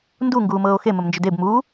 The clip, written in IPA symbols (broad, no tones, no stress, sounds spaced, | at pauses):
n d u ŋ ɡ uː m ɤː o̯ x e m ə m n d͡ʒ ʏ d e b m uː